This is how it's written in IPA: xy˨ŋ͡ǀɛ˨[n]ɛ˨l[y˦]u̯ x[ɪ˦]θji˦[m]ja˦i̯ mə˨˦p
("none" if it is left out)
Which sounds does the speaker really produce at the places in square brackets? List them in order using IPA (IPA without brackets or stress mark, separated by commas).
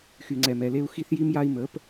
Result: m, e˦, i˦, m